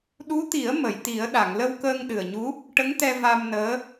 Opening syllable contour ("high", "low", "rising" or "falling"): rising